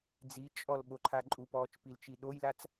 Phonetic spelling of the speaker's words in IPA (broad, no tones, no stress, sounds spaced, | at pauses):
d͡z i t͡ʃʼ ɔ l ɓ o ǃʰ a ǃʼ u p ɔː t͡ʃ p i l t͡ʃ i ɗ o j l a t͡s